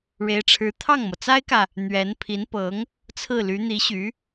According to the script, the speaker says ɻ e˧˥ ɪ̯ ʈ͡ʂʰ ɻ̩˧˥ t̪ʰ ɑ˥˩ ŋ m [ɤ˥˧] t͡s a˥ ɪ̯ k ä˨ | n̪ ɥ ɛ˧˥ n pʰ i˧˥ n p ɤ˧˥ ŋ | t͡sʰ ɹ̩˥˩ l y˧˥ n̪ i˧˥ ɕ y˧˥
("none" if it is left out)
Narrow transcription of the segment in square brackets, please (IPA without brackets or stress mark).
ɤ˩